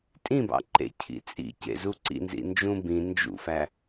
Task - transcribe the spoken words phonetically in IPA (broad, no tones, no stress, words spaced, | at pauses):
tʼĩbɑ̰ ǃḛcʰḭ t͡sʼḭcḛzu ǀḭnzḭnd͡ʒũ bĩ nd͡ʒṵfæ